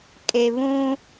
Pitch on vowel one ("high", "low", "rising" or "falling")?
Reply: low